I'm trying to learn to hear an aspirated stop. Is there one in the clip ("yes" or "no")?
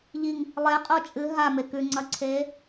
yes